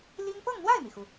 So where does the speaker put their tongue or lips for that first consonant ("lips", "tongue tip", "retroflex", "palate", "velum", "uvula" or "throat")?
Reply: tongue tip